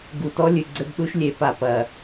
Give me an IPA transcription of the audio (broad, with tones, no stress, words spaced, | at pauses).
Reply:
ɡu˨tɔ˦lʲɨ˨ ɡ͡ǀɘ˦bɗu˦ʃlʲe˨˦ pa˨pɐ˨